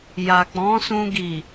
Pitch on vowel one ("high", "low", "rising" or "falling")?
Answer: low